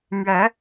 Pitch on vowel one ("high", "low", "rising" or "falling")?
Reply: rising